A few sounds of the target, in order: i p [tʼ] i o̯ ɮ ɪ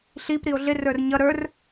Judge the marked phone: incorrect: ɾ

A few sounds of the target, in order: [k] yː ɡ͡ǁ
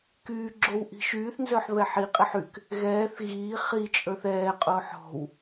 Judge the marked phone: correct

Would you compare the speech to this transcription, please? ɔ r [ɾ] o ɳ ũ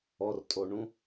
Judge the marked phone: incorrect: tʼ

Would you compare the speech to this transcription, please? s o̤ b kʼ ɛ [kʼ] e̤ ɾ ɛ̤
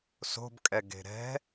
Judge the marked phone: incorrect: ɡ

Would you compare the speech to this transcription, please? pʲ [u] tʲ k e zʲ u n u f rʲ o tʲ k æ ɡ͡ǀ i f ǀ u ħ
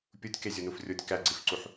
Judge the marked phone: correct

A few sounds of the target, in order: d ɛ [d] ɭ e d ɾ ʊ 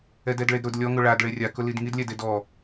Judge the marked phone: correct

